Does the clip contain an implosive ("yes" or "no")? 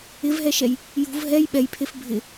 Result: yes